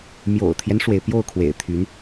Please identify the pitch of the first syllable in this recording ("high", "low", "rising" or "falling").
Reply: low